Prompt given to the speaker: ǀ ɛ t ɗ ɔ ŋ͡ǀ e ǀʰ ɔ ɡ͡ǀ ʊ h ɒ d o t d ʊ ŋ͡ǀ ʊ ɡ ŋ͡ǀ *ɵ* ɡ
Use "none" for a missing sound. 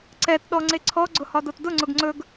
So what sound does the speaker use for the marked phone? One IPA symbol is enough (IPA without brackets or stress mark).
ɵ